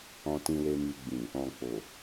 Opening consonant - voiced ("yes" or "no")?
no